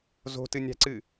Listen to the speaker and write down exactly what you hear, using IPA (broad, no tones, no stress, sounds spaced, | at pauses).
z o̤ t ɨ nʲ a̤ ǀ ɨ